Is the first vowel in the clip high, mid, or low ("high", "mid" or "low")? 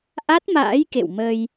low